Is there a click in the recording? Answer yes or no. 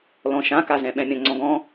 yes